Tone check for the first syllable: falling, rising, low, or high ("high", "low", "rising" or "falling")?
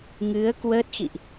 rising